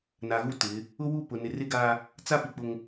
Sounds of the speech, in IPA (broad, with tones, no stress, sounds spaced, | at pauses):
n a˨ ɣ u˦ t ɪ˨˦ | ʊ˦ w u˦˨ p ʊ˨ n ɪ˨ r ɪ˦ ɡ a˦ | t͡s a˦ p i˨ k͡p ʊ˦ ŋ